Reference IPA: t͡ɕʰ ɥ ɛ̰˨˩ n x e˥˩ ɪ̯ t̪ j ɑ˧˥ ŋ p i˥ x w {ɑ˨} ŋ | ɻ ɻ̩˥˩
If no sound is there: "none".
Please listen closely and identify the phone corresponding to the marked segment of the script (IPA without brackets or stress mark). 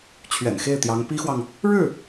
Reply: ɑ˨